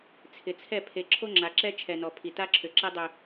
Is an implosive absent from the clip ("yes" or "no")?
yes